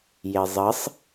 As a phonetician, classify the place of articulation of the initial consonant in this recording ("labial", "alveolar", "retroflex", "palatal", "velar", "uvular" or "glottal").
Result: palatal